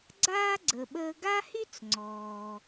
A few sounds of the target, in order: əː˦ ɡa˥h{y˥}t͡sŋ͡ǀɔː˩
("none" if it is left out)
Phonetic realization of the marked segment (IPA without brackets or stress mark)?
y˥